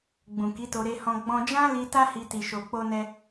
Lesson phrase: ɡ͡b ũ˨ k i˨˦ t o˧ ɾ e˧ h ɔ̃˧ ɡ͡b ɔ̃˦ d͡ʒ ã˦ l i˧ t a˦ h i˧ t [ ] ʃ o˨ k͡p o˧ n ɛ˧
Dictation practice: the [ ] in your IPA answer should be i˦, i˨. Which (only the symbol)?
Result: i˨